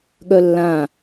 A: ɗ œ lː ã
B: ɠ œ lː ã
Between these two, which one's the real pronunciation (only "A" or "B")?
B